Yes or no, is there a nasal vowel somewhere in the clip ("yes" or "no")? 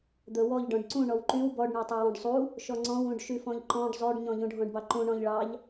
yes